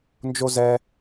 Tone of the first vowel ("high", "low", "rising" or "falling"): high